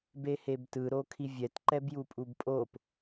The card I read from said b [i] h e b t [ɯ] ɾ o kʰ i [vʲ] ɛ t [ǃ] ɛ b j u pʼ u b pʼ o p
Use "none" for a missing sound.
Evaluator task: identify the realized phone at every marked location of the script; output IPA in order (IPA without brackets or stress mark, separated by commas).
e, ɯ, vʲ, ǃ